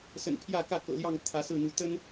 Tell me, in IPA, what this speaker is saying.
s ə̰˨˩ n pʰ j ä˥˨ k ä˥˨ k ɤ̰˨˩ l j ɑ˥˨ ŋ t̪ʰ ä˨˦ s ɹ̩˥˨ n̪ u˨˦ t̪ ə˦ n

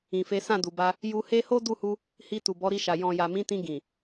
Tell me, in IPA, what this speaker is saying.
ĩ˨ f e˨˦ s ã˦˨ d u˨ b a˧ | j u˧ h e˦ h o˦ d u˦˨ h u˧ | h i˧ t u˨ b ɔ˨˦ ɾ i˧ ʃ a˨ j ɔ̃˨ j a˨ m ĩ˨˦ t ĩ˧ ɡ ĩ˨

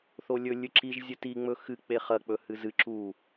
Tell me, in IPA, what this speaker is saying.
θ o lʲ ɵ lʲ ɨ ǁ i ʒ zʲ ɨ t i ŋ͡m ɵ x ɨ k͡p e χ ɐ k͡p ɵ h ɨ z ɨ ǁ u

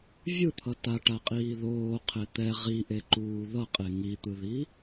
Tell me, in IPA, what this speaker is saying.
vʲ ɯ t̪ʰ ʌ t a ʈ a qʼ iː ð oː qʰ e t̪ ɛ ʁ i ʔ e ǃ uː ð ʌ qʼ e ŋ i t̪ ɯ ð i

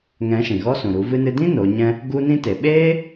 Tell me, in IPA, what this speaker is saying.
ŋ ɛ̃˨˦ ʃ ĩ˨ ɣ ɔ˦ s ũ˨ ɾ u˨˦ v ɨ˧ n ɨ˧ d ĩ˦ n o˨˦ ɲ ɛ̃˦ | ɡ u˦ n ĩ˦ t e˨ ɓ eː˦

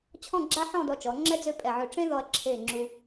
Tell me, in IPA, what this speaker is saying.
t͡ɕʰ ɔ̃˥˧ ɡ͡ǁ a˥ ħ ɔ̃˥˧ d ɔ˧ t͡ʃ ɔ˩˧ ŋ͡ǁ ɛ˥ d͡z ø˥˧ pʼ ɛ˧˩ ʕ ø˧ ʈ͡ʂ ẽ˥ ð ɔ˧ ɐ̯ ǁʰ e˧˩ ŋ͡ǁ u˧

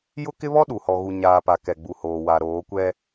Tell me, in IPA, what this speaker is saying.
j ʊ˦ k ɪ˦ β ɔ˦ ɗ u˨ h ɔ˨ ɣ u˨ ɲ aː˨ p a˨ k ɛ˨ ɡ͡b u˨ h oː˨ w a˨ ɾ oː˨˦ kʷ ɛ˦

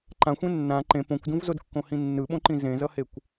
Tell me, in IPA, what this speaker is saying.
ǃ ã xʷ ẽ nː ã ǃ ẽ p õ kʷ d ũ v z o d kː õ h ĩ nː ɯ ɓ õ ǃ ĩ z ẽ z ʌ h e kʷ

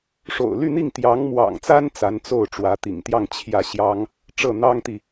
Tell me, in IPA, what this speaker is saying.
ʂ o̰˨˩ ʊ̯ l y˥˧ n̪ i˥˩ ŋ t̪ j ɑ˧˥ ŋ m w ɑ̰˨˩ ŋ t͡s a˥ n t͡s a˧˥ n t͡s o˥˩ ʊ̯ ʈ͡ʂ w ä˧˥ t̪ ḭ˨˩ ŋ t̪ j ɑ˥˧ ŋ t͡ɕʰ j ä˥˩ ɕ j ɑ˥ ŋ | ʈ͡ʂ ɤ˥˩ n̪ ɑ˥ ŋ t̪ i˨

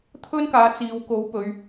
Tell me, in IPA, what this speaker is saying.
t̪ʰ ɵ˥ n k aː˨˧ t͡s iː˨ w k o˨˥ w p ɵ˨˧ ɥ

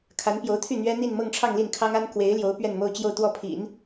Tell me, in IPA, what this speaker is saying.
kʰ a˧˥ n p j o˧˥ ʊ̯ t̪ʰ y˥˩ n̪ ɥ ɛ˥ n̪ i˥˧ n m ɤ˥˧ ŋ ʈ͡ʂʰ ɑ˥˧ ŋ l i˥˩ n kʰ ɑ˥ ŋ a˥ n k w e˧˥ ɪ̯ l j o˧˥ ʊ̯ p ɥ ɛ˥˧ n m o˥˧ ʊ̯ t͡ɕ j o˥˧ ʊ̯ t̪ w ɔ˥˩ pʰ ḭ˨˩˦ n

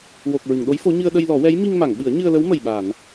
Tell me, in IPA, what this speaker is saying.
w o˨˩ k̚ ɹ ɨ˨˩˨ ŋ ɗ o˧˥ j f o˧˥ ɲ ɨ˧ ə̯ ɗ ə˧ j l ɔ˨˩˦ w ɛ˧˥ j m i˧ ŋ m a˨˩˨ ŋ ɓ ɨ˨˩˦ ə̯ ɲ ɨ˧ ə̯ l ə˧˥ w m ə˨˩ j ɓ a˨˩˨ n

